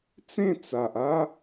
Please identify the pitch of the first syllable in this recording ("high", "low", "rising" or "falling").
falling